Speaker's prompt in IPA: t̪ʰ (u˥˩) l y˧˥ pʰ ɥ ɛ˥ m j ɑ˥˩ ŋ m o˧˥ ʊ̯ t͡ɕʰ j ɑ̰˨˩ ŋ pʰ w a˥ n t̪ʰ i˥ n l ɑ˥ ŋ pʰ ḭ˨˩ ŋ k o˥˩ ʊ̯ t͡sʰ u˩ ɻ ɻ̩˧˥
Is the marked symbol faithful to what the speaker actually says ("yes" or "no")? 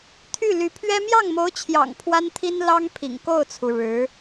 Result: no